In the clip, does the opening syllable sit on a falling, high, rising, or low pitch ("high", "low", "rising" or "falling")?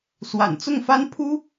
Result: low